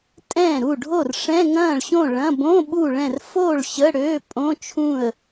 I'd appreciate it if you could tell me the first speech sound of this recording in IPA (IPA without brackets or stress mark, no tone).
tʼ